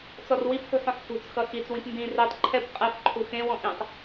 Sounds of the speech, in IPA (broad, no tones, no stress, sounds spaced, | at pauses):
t͡s ɔ r w i p ħ ṳ ħ ɔ̃ ħ f ṳ t͡s x ʌ x i t͡s w ĩ p n d ĩ r i tˤ ǃʰ ɛ p qʼ ɛ f ǃʰ u x ẽ w ɔ̃ ʔ ĩ tˤ